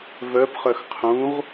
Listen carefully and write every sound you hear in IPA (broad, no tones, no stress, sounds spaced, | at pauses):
v œ p χ œ x qʰ ũ ʁ